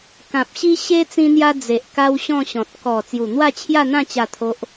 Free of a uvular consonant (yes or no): yes